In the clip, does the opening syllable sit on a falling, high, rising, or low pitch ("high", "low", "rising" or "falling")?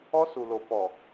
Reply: high